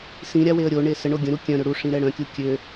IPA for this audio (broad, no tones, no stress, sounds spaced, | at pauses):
s ĩ ɾʲ a w e ə̯ ɾʲ o ɳ e s ə ɳ o ɡʲ ə̃ ɾ u kʲ œ̃ ɾ ø ɽ u ʂ ĩ ɾ ɛ ɽ œ̃ kʲ u kʲ ø